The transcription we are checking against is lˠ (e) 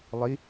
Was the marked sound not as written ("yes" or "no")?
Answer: yes